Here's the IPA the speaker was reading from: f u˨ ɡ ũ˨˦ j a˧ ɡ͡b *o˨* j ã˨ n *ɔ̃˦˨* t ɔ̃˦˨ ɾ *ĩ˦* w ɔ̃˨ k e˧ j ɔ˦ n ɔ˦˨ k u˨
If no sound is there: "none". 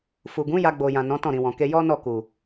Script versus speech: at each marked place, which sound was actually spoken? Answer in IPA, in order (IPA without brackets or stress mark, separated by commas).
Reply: o˨, ɔ̃˨˦, ĩ˨